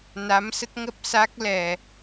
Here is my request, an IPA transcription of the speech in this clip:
n a˨˦ m s ə˦˥ t̚ ŋ ə˦˥ p̚ s a˦˥ k̚ l ɛ˨˩

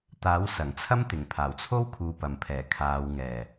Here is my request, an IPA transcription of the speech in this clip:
t̪ aː˨˥ w s ɐ˨˩ ŋ t͡sʰ ɐ˥ m t̪ ɪ˨˩ ŋ pʰ aː˨˩ w t͡sʰ o˥ w kʰ uː˨ p ɐ˨˩ m pʰ ɛː˨˩ kʰ aː˨˧ w ŋ ɛː˨˩

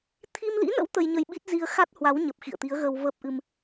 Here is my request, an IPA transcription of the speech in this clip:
t̪ʰ i˧ m l ḭ˧˥ n ə̰˧˥ w t̪ ə˧ j ɲ ə˧ j ɓ i˦˥ t̚ z i˧ ə̯ x a˦˥ t̚ h w a˨˦ w ɲ ə˨˩ p̚ x ḭ˧˨ ə̯ t̪ i˨˦ ə̯ ɣ əː˧ w v əː˦˥ p̚ ʔ ɨ˧ m

